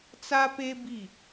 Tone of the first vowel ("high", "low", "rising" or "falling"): high